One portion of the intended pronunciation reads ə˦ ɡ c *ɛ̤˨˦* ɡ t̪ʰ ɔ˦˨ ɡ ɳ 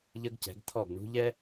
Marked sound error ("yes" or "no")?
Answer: no